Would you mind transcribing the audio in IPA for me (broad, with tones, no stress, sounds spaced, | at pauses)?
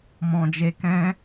m ɔ̃˨ d͡ʒ e˧ k ɛ̃˦